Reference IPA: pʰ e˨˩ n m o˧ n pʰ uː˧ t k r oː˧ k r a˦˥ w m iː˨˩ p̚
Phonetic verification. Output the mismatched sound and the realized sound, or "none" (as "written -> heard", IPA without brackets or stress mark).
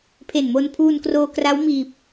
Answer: t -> n